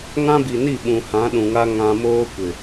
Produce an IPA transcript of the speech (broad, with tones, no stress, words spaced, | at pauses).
ŋã˦bi˨ni˦˨ ɓũ˨hã˨˦ ɗũ˨ŋa˦ ŋã˦ moː˦ kʷɪ˨